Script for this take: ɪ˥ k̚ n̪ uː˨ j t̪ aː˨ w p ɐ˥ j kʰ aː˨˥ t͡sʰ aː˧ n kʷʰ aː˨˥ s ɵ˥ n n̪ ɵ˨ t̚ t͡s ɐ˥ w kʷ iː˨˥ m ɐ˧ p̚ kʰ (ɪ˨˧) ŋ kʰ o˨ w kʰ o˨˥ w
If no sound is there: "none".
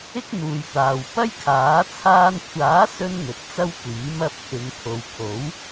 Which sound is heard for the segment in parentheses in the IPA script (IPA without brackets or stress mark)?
ɪ˨